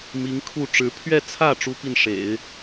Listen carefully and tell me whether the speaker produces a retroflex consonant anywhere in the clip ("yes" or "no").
yes